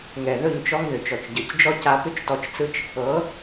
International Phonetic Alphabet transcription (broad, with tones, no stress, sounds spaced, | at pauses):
ŋ ɛ˨ ð ɵ˦˨ ɲ t͡ʃ ɔ˦ ŋ ð ʏ˨ t͡ʃ ɔ˨ t͡ʃ ɟ ɤ˨ c d͡ʒ ɔ˦ c a˧ p ʏ˦ t͡ʃ t ɔ˧ t͡ʃ t͡s ɯ˦ t͡ʃ | ɤ˨˦